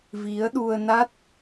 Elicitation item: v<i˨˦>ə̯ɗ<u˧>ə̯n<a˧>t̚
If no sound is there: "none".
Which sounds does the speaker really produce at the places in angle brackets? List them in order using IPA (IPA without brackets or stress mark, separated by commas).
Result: i˨˦, u˧, a˦˥